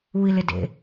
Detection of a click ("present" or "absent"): absent